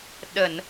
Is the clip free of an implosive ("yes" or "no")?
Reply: no